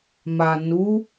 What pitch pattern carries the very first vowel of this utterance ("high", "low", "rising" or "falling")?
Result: low